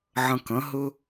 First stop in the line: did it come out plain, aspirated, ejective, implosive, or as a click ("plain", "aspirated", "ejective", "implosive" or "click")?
plain